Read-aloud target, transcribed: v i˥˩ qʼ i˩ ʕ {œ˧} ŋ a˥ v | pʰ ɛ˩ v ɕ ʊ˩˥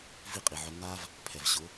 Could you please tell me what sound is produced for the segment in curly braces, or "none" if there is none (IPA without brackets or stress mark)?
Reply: œ˧